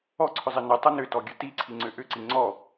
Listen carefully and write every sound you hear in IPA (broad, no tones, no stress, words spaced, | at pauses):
ɔǀʰʏzˤi nə tˤənʏtɔɡʲə tiǀʰiŋ͡ǀʏ ʔʏǀi ŋ͡ǀɔ